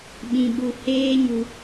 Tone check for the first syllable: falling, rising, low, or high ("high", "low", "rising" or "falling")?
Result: low